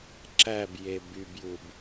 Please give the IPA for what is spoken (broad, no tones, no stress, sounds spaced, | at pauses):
ǁ æ b j e b y b j u b